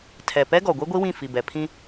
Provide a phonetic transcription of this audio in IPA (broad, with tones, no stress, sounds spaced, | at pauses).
tʰ ɛ˨ p ɛ˦ ɡ ɔ˨ ɡʷ i˦ ɡʷ i˦ w ĩ˦˨ f i˨ b ɛ˨ pʰ ĩ˦